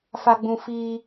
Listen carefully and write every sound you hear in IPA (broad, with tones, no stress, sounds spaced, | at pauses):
f a˨ ɡ͡b ũ˨ f iː˦